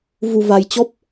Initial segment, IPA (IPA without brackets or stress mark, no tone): v